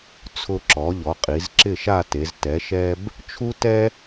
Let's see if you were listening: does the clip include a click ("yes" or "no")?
yes